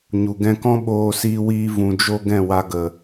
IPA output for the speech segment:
ɲu˨ɡɛ̃˧kɔ̃˦ ɓoː˧siː˧wiː˧ vũ˨d͡ʒo˧ ɡɛ̃˦˨wa˧ɡə˨

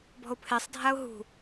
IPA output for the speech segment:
bɔ̤ʊ̯pʰesˤdʱaʊ̯ ɦṳ

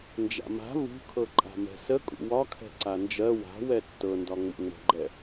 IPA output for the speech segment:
nd͡ʒa̰ma̤ vṳkʰɤ ǃʼa̤mɛ̤sə kʼṵwɒkʰɛ̤ ǀand͡ʒɜ wa̤wɛ tːɤndɒ ŋ͡mṵŋ͡mə̤ɡ͡ǃɛ

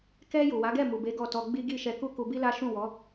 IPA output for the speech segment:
kɛ˧ ju˨wa˨˦ɡɛ˦˨ mu˨be˨˦ ɡɔ˦˨tɔ˧ ɡ͡bi˦ɡi˦˨ʃɛ˧ ku˦ku˧bi˦la˦ ʃũ˦˨wɔ˨˦

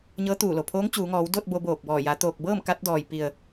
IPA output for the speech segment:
ɲɤː˧˥t̪uː˧˩lo˩ pʰoː˧˥ŋt͡ɕuː˩˧ŋɔː˩˧w do˥˨t̚ bo˧boː˧˩k̚bɔː˧˩ ja˩˧t̪oː˧˩k̚bɤː˥˨m ka˧˥t̚dɔː˩j pi˩ə̯

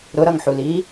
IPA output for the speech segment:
ɾʊɾʌŋħuliː

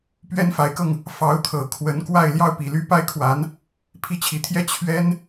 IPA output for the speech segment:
pɥɛ˥nfa˧˥ɪ̯kɤ˧ŋ | fɑ˧˥ʊ̯t̪ʰɤ˨˩ kʰwə˧˥nkwa˥˧ɪ̯ ljɑ˥˩ʊ̯pi˨˩ly˥ pa˥ɪ̯kʰwa˧˥n | pʰi˥˩t͡ɕʰi˧˥t̪ʰjɛ˥ t͡ɕʰɥɛ˥n

